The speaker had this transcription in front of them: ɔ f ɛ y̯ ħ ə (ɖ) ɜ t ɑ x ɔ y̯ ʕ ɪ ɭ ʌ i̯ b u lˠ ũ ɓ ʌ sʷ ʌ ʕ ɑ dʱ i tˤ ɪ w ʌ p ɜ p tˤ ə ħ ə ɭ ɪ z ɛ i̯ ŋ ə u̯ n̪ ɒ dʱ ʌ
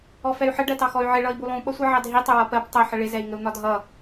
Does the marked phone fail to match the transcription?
no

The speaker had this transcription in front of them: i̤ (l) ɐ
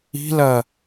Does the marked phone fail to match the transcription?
no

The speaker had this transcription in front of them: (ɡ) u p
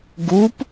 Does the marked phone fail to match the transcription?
no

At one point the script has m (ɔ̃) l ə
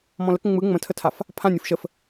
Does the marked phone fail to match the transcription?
no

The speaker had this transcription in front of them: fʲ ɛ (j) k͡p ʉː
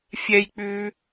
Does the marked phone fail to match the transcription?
no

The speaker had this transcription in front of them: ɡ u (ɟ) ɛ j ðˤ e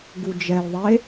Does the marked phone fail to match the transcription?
yes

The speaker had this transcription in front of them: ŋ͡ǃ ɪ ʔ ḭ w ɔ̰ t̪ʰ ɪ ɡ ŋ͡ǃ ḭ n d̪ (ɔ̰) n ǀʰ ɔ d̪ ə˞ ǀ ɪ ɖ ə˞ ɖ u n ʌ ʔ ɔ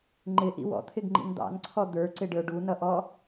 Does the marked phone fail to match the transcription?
yes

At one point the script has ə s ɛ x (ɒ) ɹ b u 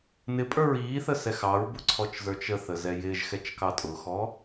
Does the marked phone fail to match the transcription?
yes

